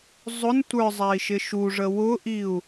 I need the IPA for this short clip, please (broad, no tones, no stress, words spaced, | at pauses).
zˤʊn tʷə˞zˤæi̯ ʃɪʃuʐə wʊʔiu̯